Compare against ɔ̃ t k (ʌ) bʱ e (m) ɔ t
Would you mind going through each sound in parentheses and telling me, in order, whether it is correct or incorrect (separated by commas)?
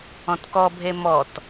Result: incorrect, correct